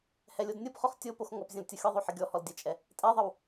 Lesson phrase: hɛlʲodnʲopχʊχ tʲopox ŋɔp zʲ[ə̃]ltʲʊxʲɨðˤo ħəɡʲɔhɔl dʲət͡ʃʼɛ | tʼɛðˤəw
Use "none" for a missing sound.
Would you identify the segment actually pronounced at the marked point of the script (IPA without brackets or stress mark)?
ə̃